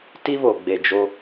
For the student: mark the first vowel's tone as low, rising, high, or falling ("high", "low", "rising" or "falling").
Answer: high